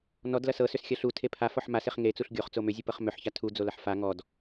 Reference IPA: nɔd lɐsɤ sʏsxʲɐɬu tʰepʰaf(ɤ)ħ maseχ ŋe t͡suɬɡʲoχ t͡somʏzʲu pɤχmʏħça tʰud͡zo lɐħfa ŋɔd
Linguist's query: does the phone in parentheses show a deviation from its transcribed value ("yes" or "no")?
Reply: yes